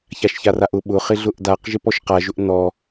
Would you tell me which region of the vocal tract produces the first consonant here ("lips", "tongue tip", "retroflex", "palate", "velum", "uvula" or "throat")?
palate